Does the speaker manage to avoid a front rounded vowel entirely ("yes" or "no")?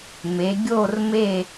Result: yes